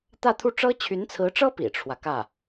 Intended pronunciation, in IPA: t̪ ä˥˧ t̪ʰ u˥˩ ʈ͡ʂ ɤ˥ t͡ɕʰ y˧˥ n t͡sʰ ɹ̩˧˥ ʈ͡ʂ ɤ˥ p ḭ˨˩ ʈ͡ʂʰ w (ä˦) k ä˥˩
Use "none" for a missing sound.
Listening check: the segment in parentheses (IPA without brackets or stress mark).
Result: ä˦